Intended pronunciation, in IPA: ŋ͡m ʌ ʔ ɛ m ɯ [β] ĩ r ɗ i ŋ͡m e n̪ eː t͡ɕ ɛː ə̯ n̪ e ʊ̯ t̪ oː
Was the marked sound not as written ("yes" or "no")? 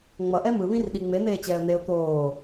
no